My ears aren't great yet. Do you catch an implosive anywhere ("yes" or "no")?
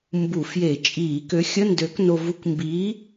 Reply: no